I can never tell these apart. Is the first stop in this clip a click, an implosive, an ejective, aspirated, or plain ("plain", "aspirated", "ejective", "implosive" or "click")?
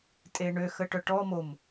ejective